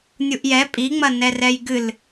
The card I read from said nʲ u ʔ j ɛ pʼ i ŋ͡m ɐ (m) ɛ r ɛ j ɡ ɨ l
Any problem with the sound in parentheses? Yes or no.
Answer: yes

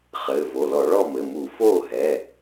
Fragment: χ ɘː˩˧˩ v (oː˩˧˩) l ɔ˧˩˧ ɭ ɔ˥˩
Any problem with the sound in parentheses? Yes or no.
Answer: yes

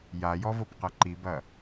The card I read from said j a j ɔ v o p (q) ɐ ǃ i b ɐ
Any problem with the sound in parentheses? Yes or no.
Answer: no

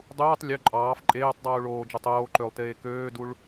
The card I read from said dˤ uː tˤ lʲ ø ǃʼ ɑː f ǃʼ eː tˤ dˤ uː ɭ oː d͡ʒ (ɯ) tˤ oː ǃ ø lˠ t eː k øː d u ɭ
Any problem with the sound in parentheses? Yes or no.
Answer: no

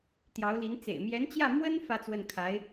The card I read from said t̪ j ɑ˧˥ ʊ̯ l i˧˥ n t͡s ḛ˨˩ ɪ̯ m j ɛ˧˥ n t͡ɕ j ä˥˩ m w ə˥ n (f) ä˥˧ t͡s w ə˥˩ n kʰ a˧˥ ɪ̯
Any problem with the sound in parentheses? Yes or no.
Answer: no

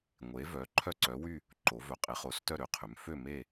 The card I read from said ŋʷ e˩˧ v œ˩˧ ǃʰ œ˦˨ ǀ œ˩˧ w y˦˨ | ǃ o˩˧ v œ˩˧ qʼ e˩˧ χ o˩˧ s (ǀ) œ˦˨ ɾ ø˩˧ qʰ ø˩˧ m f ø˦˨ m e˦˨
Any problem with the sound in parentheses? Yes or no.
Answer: yes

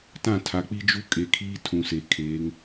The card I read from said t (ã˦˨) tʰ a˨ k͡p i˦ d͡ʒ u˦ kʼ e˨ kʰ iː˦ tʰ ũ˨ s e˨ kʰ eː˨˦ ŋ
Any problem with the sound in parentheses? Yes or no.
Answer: no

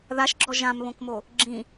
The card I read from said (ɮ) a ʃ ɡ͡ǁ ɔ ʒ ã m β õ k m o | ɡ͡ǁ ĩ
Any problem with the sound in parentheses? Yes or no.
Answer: yes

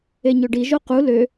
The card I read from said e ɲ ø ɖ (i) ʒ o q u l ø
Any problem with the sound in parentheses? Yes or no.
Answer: no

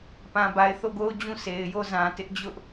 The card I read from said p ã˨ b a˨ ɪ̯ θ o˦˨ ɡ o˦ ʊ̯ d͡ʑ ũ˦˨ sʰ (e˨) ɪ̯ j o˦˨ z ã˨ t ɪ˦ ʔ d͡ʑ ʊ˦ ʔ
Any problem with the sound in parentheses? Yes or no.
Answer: no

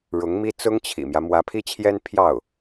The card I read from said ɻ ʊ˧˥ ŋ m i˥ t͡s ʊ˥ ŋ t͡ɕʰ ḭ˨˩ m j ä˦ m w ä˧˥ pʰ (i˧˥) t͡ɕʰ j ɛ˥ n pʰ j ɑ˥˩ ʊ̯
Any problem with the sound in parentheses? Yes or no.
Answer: yes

